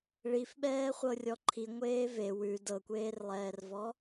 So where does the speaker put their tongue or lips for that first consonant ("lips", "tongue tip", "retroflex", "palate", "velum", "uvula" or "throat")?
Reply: retroflex